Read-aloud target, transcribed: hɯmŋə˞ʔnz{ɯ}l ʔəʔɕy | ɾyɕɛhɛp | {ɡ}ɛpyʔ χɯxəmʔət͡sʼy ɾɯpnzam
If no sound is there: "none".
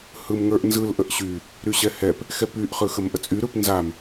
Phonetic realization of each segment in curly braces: ɯ, x

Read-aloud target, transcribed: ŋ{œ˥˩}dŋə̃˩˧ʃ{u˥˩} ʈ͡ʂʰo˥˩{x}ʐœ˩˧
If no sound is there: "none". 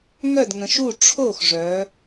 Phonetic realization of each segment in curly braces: œ˥˩, u˥˩, x

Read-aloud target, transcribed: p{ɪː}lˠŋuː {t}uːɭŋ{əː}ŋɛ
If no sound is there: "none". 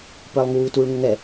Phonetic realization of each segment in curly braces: əː, t, ə

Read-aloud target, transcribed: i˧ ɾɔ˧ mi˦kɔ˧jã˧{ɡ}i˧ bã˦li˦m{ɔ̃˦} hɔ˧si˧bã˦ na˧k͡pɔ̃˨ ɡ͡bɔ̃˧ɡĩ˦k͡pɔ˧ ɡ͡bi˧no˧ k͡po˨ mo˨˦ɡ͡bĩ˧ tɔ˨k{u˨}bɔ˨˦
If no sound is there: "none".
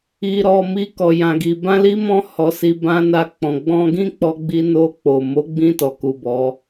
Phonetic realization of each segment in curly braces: ɡ, ɔ̃˦, u˨

